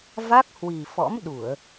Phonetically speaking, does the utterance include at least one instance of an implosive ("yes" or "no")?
yes